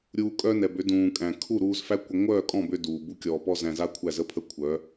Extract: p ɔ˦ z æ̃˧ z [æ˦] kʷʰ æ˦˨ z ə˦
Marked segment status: incorrect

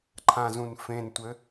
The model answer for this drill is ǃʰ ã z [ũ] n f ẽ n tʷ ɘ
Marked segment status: correct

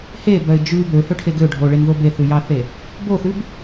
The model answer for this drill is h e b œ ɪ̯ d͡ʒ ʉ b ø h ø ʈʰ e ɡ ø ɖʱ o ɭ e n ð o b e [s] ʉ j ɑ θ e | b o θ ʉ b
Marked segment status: incorrect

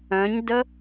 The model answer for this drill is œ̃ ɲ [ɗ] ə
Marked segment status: incorrect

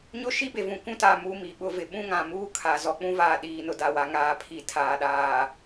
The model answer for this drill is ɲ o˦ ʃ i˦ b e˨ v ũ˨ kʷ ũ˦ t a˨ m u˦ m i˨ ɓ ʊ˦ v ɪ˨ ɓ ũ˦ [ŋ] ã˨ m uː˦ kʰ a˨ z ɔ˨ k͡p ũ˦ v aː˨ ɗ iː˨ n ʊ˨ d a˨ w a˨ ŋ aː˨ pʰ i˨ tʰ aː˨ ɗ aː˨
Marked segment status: correct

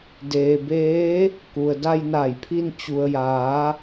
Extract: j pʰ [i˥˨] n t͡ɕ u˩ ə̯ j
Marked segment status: incorrect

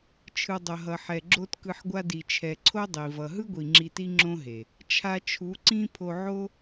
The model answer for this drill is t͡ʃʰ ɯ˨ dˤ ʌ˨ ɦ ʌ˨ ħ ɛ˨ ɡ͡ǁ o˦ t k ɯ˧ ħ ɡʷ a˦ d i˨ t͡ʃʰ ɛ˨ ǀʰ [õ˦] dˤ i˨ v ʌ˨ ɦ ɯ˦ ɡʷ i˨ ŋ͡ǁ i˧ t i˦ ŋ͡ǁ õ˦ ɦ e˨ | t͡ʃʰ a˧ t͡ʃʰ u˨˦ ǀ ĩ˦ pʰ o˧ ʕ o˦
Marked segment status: incorrect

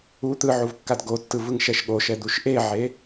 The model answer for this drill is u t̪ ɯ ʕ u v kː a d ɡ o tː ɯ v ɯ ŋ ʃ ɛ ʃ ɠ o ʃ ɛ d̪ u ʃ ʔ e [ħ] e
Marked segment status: incorrect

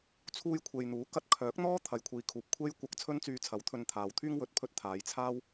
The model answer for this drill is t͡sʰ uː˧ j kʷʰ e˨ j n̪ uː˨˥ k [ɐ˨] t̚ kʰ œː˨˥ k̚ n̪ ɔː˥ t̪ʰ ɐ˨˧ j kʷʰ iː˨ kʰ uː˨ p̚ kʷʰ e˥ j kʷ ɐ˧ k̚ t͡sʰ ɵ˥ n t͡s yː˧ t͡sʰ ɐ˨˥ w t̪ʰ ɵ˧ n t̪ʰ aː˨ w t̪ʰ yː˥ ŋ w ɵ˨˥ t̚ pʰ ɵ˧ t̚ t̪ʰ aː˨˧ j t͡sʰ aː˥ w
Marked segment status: incorrect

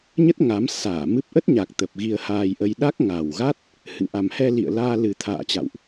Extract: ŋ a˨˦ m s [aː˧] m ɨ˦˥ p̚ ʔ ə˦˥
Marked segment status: incorrect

